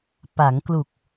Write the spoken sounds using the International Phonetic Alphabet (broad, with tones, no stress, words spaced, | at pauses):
pa˩˦ŋklu˨˩k̚